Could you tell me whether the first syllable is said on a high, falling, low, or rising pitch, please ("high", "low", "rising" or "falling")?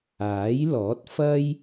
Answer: rising